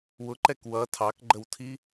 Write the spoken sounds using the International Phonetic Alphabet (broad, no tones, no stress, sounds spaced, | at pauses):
w ʊ ǃ ɛ k w ʌ tʰ ɑ k ɡ͡ǃ ə w tʰ i